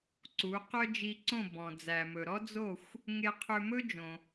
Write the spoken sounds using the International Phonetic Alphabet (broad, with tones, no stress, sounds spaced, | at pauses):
ǀ u˩˥ q œ˥ d͡ʒ i˧ ǀ õ˥˩ b ɔ̃˩ d͡z æ˩ m ɵ˩ ɾ ɔ˥ d͡z o˥˩ xʷ | ŋ e˧ qʰ ø˧ m ɵ˥ d͡ʒ õ˩